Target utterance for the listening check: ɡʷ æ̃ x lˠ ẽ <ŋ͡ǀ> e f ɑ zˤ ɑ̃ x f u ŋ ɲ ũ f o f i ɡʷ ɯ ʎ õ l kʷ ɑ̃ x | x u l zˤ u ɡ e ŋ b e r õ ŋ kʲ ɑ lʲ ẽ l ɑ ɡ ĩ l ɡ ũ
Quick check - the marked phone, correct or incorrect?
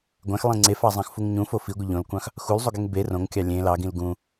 correct